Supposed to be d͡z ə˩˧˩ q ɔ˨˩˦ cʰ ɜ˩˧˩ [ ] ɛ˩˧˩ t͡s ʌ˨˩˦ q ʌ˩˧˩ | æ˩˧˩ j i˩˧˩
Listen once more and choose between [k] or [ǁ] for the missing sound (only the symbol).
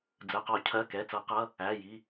k